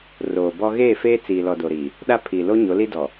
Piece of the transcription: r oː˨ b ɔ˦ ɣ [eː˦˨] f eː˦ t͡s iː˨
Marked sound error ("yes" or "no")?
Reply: no